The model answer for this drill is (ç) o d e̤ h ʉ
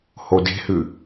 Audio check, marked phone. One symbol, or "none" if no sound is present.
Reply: h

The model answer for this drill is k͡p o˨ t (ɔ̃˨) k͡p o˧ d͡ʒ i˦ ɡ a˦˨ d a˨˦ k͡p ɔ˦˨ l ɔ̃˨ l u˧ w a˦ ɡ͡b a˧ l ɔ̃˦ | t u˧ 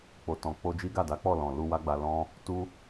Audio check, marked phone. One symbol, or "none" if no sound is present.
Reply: ɔ̃˨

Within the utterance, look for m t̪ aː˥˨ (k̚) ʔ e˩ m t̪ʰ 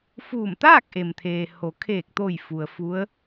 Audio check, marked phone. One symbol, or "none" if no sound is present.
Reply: k̚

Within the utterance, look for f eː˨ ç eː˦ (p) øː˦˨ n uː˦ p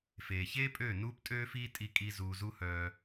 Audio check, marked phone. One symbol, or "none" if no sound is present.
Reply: pʼ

